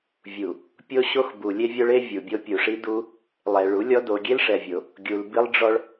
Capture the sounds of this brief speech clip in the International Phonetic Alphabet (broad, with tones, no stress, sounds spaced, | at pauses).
vʲ u˨ | pʲ o˦ ɕ o˦ x b u˨ lʲ e˦ vʲ o˦ ɭ e˦ vʲ u˨ bʲ o˦ pʲ u˨ ʂ i˦ d u˦ | lˠ ɛ˨ ɭ u˨˦ lʲ ɔ˦ d o˨ ɡʲ e˦ l ʂ ɛ˨ vʲ o˨ | ɡʲ u˨ l b i˦ lˠ ɖ͡ʐ ɔ˦ ɭ